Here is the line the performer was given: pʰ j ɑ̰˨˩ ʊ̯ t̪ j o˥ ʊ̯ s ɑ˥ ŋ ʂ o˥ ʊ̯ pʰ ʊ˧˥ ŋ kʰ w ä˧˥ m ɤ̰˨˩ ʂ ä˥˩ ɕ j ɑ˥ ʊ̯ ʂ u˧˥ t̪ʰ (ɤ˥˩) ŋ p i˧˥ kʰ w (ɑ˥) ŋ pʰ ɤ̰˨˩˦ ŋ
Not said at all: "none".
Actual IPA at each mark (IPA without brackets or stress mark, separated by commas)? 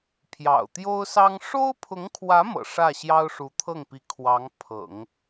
ɤ˥˩, ɑ˧˥